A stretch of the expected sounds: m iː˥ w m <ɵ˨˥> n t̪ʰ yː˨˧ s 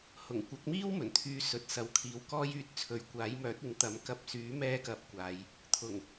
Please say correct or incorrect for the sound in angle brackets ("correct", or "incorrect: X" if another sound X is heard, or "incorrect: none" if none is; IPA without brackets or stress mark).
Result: incorrect: ɵ˨˩